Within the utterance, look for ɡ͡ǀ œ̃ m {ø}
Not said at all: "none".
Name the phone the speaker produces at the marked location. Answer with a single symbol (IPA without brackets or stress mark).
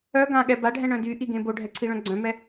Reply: ɛ